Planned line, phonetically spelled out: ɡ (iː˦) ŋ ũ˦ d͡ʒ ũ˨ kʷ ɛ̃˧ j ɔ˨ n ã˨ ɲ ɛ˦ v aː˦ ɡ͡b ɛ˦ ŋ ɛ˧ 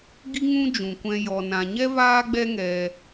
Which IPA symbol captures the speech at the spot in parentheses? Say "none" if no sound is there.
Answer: i˦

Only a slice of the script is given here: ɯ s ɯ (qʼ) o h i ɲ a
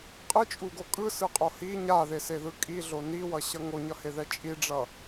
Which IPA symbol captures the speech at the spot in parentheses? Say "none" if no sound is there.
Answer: qʼ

